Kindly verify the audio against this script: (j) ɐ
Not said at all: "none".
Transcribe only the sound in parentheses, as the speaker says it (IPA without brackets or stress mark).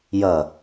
j